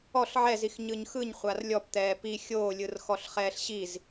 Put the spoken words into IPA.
ɔ ɬ ʕ ɛ z i x ɲ ɯ ɲ x ɯ ɲ χʷ a r lʲ ɔ p t̪ ɛː p i xʲ oː lʲ ɯ r x ɔ ɬ χ ɛː ɬ ɕ i z

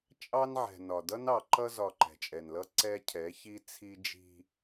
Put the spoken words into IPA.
t͡ʃʼ ɑ˦ n ʕ ɛ̤˨ n ɒ˨ d ʌ˦ n ɑ˨ ǃ ʌ˦ z ɒ˨ ǃ ɛ̤˨ t͡ʃʼ ɛ˨ n l ʌ˦ ǀ ɛ˦ cʰ ɛ˨˦ ç i˦ t͡sʰ i˦ d͡ʒ i̤˦

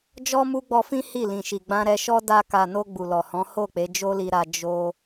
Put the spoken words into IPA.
d͡ʒ ɔ˦ m u˦ ɡ͡b ɔ˧ f ĩ˦ h i˦˨ l ĩ˨ ʃ i˨ ɡ͡b ã˧ ɾ ɛ˧ ʃ ɔ˦ d a˧ k a˨ n o˧ ɡ͡b u˨ l ɔ˨ h ɔ̃˨˦ h o˦˨ k͡p e˨˦ d͡ʒ o˦ l i˧ ɾ a˧ d͡ʒ o˧

